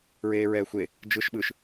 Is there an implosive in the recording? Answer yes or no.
yes